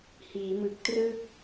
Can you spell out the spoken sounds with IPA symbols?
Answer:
h iː˩˦ m ɯ˨˩ k̚ t r ɯ˥˩ k̚

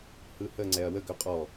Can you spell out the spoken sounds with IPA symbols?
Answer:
h ɯ h ə ŋ͡ǀ ɛ ɐ̯ w ə ɡ œ qʼ ɔ

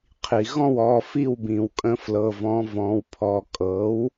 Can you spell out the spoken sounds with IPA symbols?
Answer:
qʰ i˩ ɣ ɔ̃˥˩ w ɔ˩˧˩ f i˥˩ w b ĩ˩ w kʼ ə̃˧˥ f l ɤ˩˧˩ v ɔ̃˩˥ v ɔ̃˩˧˩ w pʰ ɔ˩˧˩ kʼ ɤ˩˥ w

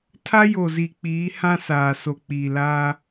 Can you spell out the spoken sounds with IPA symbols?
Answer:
tʰ a˦ j o˨ z i˨ k͡p iː˨˦ h ã˦ s aː˨ s o˨ k͡p iː˨ l aː˦

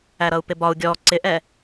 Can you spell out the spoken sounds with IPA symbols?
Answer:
æ ɾ ʌ u̯ p ɪ b ɒ u̯ ɡʲ ɔ ǀ ɪ ʔ ɛ

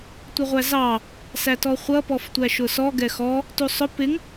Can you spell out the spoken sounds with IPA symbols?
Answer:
tʷ ə ʁʷ æ z ɑ | s æ t ɔ χʷ ʌ p ɔ f tʷ æ ʃ ʊ s ɔ ɡ ɛ x ɔ | t u sˤ ʊ p ɪ ŋ

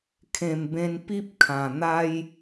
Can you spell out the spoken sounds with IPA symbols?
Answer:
kʰ ẽ˨˩ m b ẽ˧ n p i˦ p̚ kʰ ã˨˩ n̪ a˦ j

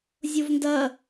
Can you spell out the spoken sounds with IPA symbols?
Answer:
zʲ o v n d ɐ

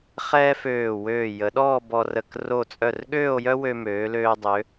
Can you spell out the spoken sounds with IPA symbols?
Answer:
χ ɛː˥ f øː˧˩ w øː˧˩ j ə˩˧ ɗ ɔː˥˧ b ɔ˧ r ə˧˩ k r o˧˩ t͡sʼ œ˧˩ r ɠ øː˥˧ o̯ j œ˥ w ø˧ m øː˩˧ l øː˧ dˤ ø˩˧

